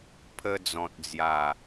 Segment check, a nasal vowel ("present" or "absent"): present